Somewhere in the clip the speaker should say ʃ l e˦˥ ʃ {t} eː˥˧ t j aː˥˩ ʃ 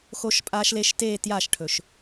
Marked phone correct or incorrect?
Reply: correct